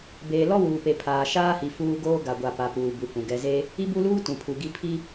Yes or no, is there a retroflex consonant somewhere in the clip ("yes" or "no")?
no